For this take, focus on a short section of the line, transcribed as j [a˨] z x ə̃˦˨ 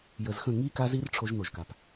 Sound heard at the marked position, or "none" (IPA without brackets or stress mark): ə˨